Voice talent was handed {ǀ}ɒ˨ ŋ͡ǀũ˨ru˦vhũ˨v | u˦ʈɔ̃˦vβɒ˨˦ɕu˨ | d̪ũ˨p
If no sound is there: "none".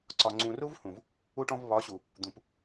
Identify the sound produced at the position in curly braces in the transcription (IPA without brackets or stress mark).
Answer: ǀ